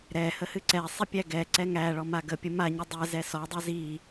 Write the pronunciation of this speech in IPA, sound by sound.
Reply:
ɾ ɛ h ə h ɨ ǀ ɛ sˤ i pʲ æ ɡ ɛ ǀ ɛ ŋ æ ɭ ɔ m a ɡ ə pʲ ə m a ɲ ə dˤ ɛ z ɛ s ɔ dˤ ɛ z i

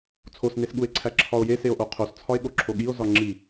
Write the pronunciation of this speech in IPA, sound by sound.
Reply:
t͡sʰ o s n e s ɠ u e̯ ǀʰ æ ǁʰ ɒ o̯ j e s e o̯ ʔ o qʰ o s t͡sʰ ɒ e̯ ɠ o ǁʰ o ɠ i o̯ z ɒ ŋ͡ǁ i

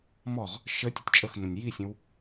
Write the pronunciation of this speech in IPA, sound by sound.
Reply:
m ɔ ʁ | ʃ ə tʲ ə tʲ t͡ʃʼ ə x n ə̃ nʲ j i sʲ ə̃ w

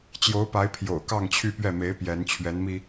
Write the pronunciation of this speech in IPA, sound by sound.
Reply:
t͡ɕ j o˧˥ ʊ̯ p a˧˥ ɪ̯ pʰ j o̰˨˩ ʊ̯ k ɑ˥˧ ŋ t͡ɕʰ y˥˧ p ɥ ɛ˥˩ m e˧˥ ɪ̯ p j ɛ˧˥ n t͡ɕʰ ɥ ɛ˧˥ n m i˧

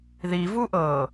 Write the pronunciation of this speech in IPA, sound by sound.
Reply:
ð i v u ʔ ɤ

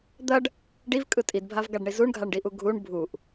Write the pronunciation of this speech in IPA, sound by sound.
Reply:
d̪ ɐ ɖ | ɖ i v kʼ ɯ tʼ i d bʱ a v ɡ a ɖ ɳ i z u ɳ ɡʱ a ɳ ɖ i ʔ u ɡʱ u ɳ bʱ u ʔ

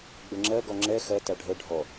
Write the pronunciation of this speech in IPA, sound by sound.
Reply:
ɡ͡b ə ŋ͡ǁ ɜ ɡ ɔ ŋ͡ǁ ɛ x ɜ t æ ɖʱ ə ɖʱ ɔ

